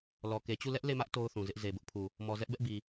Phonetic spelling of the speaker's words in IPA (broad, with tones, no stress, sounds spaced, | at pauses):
l ɔ˨ k e˨ t͡ɕ u˦˨ l ɛ˦ ʔ l e˦˨ m ä˦ ʔ t o˦ ʊ̯ θ ũ˨ z ɪ˦ ʔ z e˨ b ʊ˦ ʔ pʰ u˨ | m ɔ˨ z ɛ˦ ʔ b ɛ˦ ʔ b i˨